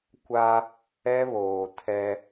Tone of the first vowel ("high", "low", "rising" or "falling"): high